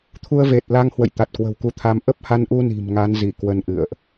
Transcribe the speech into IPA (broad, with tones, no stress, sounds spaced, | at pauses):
t̪ʰ u˧ ə̯ v e˨˩ t̚ l a˧ ŋ h w ə̰˧˨ j t̪ a˨˩ t̚ k w ə̤˨˩ w k u˨˦ t̪ʰ a˧ m ʔ ə˦˥ p̚ h a˧ n ʔ u˧ n i̤˨˩ m ŋ a˨˦ n z i˧˩ k w ə˧ n ʔ ɨ̰˧˨ ə̯ ʔ